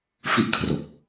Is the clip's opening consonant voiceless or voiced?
voiceless